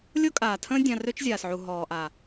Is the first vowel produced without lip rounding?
no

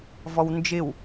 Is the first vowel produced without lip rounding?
no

